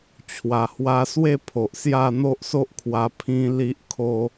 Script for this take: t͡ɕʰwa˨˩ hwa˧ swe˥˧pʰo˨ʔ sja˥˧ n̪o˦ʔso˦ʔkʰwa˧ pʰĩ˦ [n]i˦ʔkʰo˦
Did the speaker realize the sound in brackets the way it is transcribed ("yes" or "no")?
no